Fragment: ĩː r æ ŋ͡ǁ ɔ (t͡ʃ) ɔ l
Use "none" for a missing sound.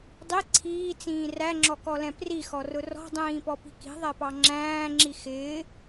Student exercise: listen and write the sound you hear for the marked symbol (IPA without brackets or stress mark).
k